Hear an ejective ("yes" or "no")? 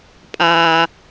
yes